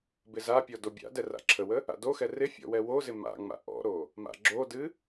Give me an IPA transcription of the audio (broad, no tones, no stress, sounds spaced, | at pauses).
b ɪ z a pʲ ɔ d o bʲ a̰ d ɛ r a̰ ǁʰ ə w ə | a̰ d o x ɛ r ɪ fʲ ɔ̰ w ɛ w o z ɪ m a̰ ŋ͡m a̰ ʔ ɔ̰ ɾ o | m a̰ ɡ͡ǁ o d ɨ